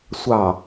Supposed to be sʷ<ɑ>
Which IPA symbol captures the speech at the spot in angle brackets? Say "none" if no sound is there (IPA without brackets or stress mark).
ɑ